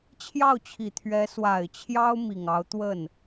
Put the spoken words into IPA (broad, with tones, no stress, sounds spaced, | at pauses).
t͡ɕʰ j ɑ˥˩ ʊ̯ t͡ɕʰ i˨˩ t̪ʰ ɥ ɛ˧˥ s w a˨˩ ɪ̯ t͡ɕʰ j ɑ˥ ʊ̯ m i˨˩ ŋ ɑ˧˥ ʊ̯ t̪ w ə˥˩ n